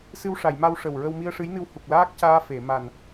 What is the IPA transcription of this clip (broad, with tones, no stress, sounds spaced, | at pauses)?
s ɨ˧ w ʂ a˨˩˨ j m a˧ w ʂ ə˨˩ w ɹ ə˧ w m i˧ ə̯ ʂ ɨ˧˥ j n ɨ˧ w h u˨˩ k̚ l aː˦˥ k̚ c aː˧ f e˨˩˨ m a˨˩ n